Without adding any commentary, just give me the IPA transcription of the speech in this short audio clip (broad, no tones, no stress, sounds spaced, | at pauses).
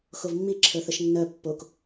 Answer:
x o v mː i ǁʰ ə˞ θ ə ʃ nː œ pː o k